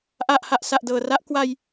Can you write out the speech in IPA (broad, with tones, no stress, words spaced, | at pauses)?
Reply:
ʔa˨˩ʔha˨˩ʔ sa˨˩ʔdɤː˨˩ra˦˥ʔ kwa˧j